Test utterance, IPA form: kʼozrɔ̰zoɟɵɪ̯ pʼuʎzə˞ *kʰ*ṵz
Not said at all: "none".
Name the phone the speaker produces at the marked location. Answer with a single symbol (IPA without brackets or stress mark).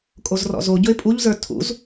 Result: tʰ